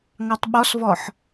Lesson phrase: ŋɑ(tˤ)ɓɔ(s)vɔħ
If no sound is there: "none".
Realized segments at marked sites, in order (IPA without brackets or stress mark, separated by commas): tˤ, s